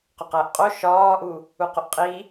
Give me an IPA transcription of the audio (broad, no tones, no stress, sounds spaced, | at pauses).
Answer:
q o q æ ʔ qʼ o ʃ ɒː ʔ u | u q o ʔ qʼ i